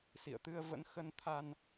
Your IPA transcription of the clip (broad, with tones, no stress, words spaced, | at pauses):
sḭ˧˨ə̯t̪ɨ˧ə̯ və̰˧˥n xə˧nt̪ʰa˧n